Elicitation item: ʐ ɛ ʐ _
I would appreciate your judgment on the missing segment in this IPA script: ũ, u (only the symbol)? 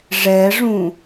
ũ